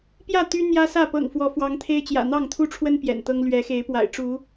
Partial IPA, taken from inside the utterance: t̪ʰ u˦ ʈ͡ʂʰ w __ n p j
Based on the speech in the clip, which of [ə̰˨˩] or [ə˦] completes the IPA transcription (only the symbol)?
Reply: ə˦